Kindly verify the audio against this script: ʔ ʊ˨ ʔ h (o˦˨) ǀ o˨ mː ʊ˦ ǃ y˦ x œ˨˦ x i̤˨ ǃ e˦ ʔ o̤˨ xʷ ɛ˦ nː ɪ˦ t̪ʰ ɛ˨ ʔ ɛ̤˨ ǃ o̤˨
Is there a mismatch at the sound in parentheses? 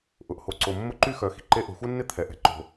yes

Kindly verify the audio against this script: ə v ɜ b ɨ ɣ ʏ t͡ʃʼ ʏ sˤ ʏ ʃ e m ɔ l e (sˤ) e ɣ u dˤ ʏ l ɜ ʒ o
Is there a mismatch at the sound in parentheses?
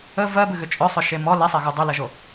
no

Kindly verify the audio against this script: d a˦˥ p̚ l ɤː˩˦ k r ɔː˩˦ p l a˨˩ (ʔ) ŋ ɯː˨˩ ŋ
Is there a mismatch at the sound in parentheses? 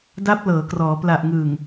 no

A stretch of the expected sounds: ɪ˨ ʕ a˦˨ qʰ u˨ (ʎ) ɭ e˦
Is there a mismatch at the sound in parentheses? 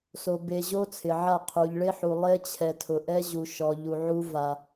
no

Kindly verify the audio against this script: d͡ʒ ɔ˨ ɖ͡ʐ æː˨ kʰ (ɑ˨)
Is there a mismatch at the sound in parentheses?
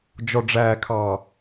no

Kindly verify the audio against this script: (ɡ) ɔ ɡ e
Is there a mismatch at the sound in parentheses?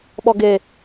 yes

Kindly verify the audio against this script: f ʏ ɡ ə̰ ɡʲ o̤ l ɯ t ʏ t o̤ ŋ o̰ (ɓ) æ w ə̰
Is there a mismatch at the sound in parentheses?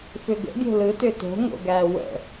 yes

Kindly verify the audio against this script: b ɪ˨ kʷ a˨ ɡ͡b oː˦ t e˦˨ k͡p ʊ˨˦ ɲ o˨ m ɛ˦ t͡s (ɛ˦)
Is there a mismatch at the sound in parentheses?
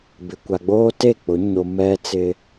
yes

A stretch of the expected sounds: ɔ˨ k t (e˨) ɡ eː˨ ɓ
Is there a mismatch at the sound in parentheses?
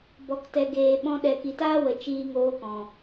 yes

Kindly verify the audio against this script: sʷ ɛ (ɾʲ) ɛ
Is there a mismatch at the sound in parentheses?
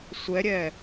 no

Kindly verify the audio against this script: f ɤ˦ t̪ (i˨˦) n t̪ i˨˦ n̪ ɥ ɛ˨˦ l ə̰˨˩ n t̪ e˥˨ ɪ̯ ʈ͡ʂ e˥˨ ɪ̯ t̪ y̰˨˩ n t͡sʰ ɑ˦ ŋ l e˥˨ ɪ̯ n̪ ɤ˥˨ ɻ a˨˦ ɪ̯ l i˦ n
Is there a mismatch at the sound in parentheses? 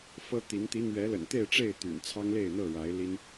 no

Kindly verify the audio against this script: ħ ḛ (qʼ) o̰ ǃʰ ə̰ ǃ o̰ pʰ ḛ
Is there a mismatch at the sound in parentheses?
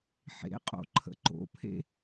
no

